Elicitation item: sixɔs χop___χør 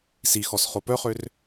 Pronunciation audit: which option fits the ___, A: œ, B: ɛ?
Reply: A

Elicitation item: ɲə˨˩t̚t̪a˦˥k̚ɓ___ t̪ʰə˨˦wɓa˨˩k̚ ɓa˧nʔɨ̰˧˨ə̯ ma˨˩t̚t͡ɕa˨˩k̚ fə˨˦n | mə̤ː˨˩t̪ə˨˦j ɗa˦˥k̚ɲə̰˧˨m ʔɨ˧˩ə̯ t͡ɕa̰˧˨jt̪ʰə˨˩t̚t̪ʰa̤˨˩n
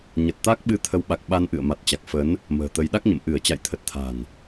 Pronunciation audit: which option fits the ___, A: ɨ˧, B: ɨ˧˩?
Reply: A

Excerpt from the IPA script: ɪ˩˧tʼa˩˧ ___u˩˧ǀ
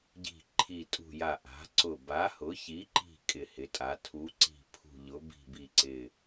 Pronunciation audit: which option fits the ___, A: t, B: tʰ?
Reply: B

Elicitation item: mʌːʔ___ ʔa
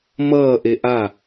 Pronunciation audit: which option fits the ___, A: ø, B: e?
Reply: B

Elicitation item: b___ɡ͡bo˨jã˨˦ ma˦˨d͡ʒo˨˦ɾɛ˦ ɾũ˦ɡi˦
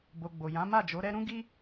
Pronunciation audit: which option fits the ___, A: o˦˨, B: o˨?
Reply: B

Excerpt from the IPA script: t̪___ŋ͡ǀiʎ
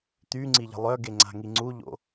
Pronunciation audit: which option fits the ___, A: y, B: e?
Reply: A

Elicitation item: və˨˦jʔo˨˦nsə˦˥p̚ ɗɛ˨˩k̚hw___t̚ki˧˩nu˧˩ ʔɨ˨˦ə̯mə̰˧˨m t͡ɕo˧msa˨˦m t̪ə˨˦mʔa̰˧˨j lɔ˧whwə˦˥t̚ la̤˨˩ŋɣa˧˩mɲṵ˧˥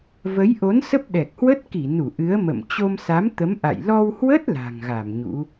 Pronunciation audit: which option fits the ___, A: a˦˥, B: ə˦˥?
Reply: B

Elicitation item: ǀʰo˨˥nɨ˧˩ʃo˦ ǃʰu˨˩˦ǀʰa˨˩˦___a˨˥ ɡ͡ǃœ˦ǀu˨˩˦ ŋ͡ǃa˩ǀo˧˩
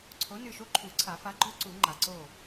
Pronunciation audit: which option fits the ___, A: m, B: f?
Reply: B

